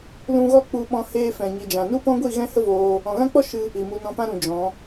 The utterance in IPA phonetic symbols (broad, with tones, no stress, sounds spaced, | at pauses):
l ũ˧ ɣ ɔ˧ k͡p u˨ ɓ ɔ̃˧ h eː˧ f ɛ̃˨ ɲ i˨ d͡ʒ ã˨ n u˦ p ɔ̃˦ ɡʷ i˦˨ ɣ ɛ̃˦ h ə˦ v oː˧ | ɔ̃˨ ɣ ã˦ k͡p ɔ˦ ʃ ɨ˦ | i˨ m u˧ n ɔ̃˧ p ã˦ ɾ ũ˨ d͡ʒ ɔ̃˨˦